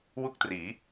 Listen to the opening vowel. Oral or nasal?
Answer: oral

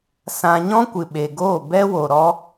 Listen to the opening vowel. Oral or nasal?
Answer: nasal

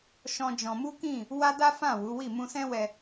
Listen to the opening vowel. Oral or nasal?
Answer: nasal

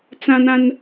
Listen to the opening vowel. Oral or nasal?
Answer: nasal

